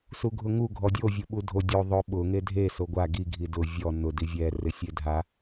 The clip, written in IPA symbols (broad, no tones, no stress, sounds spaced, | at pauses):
s u ɡʱ ʊ ŋ u ɡʱ ɔ dʲ o vʲ u ɓ u dʱ o dʲ o ðˤ ʊ ɓ ʊ ŋ e dʱ e s o ɡʷ a ɡ i ɡʱ i d ʊ vʲ ɔ n ʊ d i vʲ ɛ r ɪ sʲ e dʱ a